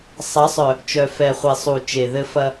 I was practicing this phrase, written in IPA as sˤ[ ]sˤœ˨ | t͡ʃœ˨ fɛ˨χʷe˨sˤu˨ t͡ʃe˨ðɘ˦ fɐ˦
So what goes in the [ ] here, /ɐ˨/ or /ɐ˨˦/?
ɐ˨˦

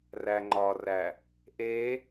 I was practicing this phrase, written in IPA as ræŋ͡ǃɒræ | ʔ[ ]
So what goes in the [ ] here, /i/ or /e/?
e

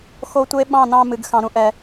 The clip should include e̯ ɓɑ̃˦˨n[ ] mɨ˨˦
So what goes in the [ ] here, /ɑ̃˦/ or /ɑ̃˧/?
ɑ̃˧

